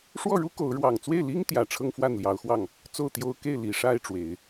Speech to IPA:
ʂ w ɔ˥˩ ɻ u˥ k o˧˥ ʊ̯ ɻ w ɑ˨˩ ŋ t͡s w e˥˩ ɪ̯ l i˥ ŋ t̪ j ä˨˩ ʈ͡ʂʰ ɤ˥ ŋ f w a˥˩ n l j ɑ˧˥ ʊ̯ x w ɑ˥˩ ŋ | t͡s o˥˩ ʊ̯ t̪ j o˥ ʊ̯ k e˥˩ ɪ̯ l i˨˩ ʂ a˥˩ ɪ̯ ʈ͡ʂ w e˨˩˦ ɪ̯

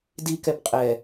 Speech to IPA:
d i k ɛ b qʼ ɛ

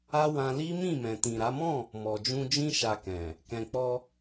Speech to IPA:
a˦ w ã˧ l i˦ m ĩ˦˨ m ɛ̃˨ t ĩ˨ ɾ a˨˦ m ɔ̃˦˨ | m ɔ˨ d͡ʒ ũ˧ d͡ʒ ĩ˦ ʃ a˧ k ɛ̃˨ | k ɛ̃˨ k͡p ɔ˧

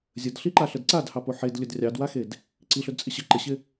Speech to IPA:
zʲ ə d ɬ i ǃ a ɬ ə d ǀ a d h ɑ p o ħ e d lʲ ɵ d rʲ ɑ d w a x e d | ǀ i ɬ ɵ d t͡sʼ ɪ ɕ ə ǃ ɪ ɕ ɪ

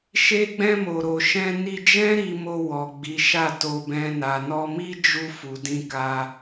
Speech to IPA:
ʃ e˧ ɡ͡b ɛ̃˧ m o˨ ɾ o˨ ʃ ɛ̃˧ n i˧ d͡ʒ ɛ̃˦ ɾ i˧ m o˧ w ɔ˨ ɡ͡b i˨˦ ʃ a˦˨ t o˧ b ɛ̃˧ n a˨ n ɔ˧ m i˦ d͡ʒ u˧ f u˨ d ĩ˧ k a˧

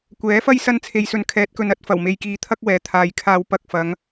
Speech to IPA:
kʷ ɛː˨˥ f ɐ˥ j s ɐ˧ n t͡sʰ e˨ j s ɵ˨ n kʰ ɛː˨˥ t̚ k ɵ˨ n ɐ˨˥ t̚ f ɐ˨˩ w m e˨ j k iː˨ t̪ʰ ɐ˥ k̚ w ɛː˨˥ t̪ʰ aː˨ j kʰ aː˧ w p ɐ˧ k̚ f ɐ˨˧ ŋ

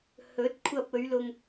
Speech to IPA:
h ɵ˨˥ t̚ kʷʰ ɐ˧ p̚ ɵ˨˧ ɥ l ʊ˧ ŋ

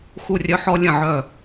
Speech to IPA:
x u˧˩ rʲ œ˧ ħ ɔ˧ lʲ ə̃˧˩ ʕ œ˧˩

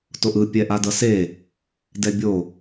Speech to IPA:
t o ʔ ɯ pʲ ɛ ʔ a d ʌ s e | d ɛ bʲ o

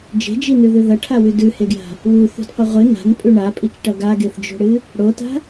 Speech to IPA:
d͡ʒ e̤ d͡ʒ i n ʉ ð ʉ ð ɐ ʈʰ a w ʉ d ʉ h e ɡ j a̤ | w u θ ṳ d qʷ ɨ ʁʷ ɨ n a̤ n pʼ ʉ ɳ a pʼ i t͡ʃ ʈ ɐ ɡ a ɡ e θ d͡ʒ o̤ ɽ ɨ | ɽ o t a̤

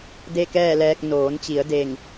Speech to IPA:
d e˥˨ k ɛː˥˨ l ɛː˧ k̚ n oː˩˧ n t͡ɕ i˩˧ ə̯ d e˧˩ ŋ

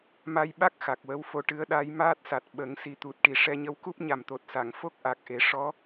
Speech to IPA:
m a˧ j ɓ a˦˥ k̚ x a˨˩ k̚ w ə˧˥ w f o˧ ʈ ɨ˧˥ ə̯ ɗ a˧˥ j m aː˦˥ t̚ s a˨˩ t̚ ɓ ə˨˩˦ ŋ s i˨˩ t̪ u˨˩ t̚ ʈ i˨˩ ʂ ɛ˧ ɲ ə˧˥ w k u˦˥ p̚ ɲ a˨˩ m t̪ o˨˩ t̚ s a˨˩˨ ŋ f o˦˥ k̚ ʔ a˨˩ k̚ ʔ e˨˩˦ ʂ ɔ˧˥

